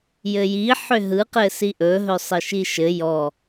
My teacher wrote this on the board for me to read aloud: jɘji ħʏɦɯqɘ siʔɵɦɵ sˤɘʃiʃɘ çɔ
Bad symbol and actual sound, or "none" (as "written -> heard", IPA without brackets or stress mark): ç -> j